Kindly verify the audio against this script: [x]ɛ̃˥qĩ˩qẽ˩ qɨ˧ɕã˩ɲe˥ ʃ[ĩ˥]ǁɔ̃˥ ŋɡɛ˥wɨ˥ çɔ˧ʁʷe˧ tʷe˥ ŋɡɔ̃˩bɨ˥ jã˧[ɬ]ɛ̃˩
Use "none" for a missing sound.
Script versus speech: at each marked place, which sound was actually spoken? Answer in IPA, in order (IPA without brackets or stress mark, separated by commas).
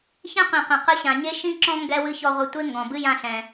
ç, ĩ˥, ɬ